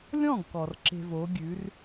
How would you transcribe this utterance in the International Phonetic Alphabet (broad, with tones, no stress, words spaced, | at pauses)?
lʲɔ̃˥˩ɡkɔ˩r ǁe̤˧vo˩˥ɡʲʉ˩˥r